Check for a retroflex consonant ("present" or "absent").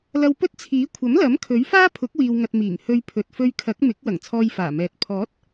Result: absent